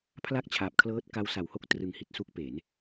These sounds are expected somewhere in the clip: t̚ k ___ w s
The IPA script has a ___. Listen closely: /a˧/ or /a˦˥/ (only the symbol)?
a˦˥